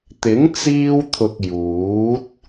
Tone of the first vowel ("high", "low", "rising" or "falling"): rising